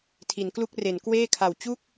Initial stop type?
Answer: aspirated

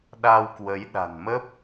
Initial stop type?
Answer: implosive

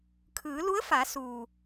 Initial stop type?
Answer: aspirated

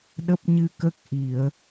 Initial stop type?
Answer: implosive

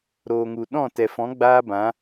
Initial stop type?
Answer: implosive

